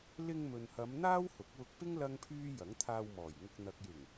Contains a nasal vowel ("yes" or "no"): no